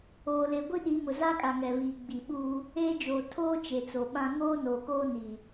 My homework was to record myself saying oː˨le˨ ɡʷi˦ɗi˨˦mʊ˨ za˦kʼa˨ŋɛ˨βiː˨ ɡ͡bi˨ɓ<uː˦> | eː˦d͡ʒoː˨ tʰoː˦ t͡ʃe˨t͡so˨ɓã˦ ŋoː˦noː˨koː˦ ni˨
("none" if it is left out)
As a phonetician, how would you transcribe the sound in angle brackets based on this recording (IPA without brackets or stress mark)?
uː˦